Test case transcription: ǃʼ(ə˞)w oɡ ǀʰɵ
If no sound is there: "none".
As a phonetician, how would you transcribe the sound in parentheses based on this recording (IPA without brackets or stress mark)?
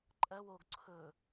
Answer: ɜ